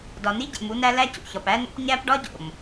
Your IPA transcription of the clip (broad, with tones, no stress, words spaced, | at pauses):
dɒ˨ni˦ɟḛ˨m u˦næ˦ læ˦cṵ˨çɒ˨p æ˦no̰˦p ɲæ˦pɖɒ˦ɟo̰˨m